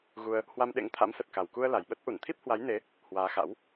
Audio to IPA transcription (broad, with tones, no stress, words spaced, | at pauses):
ɣu˧ə̯ | hwa˧mɗḛ˧˥ŋt̪ʰa̰˧˥msə˨˩t̚ ka˨˩wku˧ə̯ la˨˩jɓə˦˥t̚ ʔu˧˩nt̪ʰi˦˥p̚hwa˨˦jne˨˦ | hwaː˨˦xa̰˧˥w